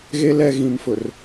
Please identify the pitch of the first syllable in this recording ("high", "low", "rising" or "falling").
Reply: low